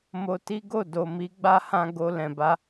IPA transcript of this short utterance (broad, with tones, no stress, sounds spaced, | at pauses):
m o˧ t i˦ ɡ o˦˨ d o˨ m i˨˦ ɡ͡b a˦ h ã˧ ɡ o˧ l ɛ̃˨ b a˨˦